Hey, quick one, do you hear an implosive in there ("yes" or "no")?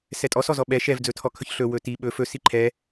yes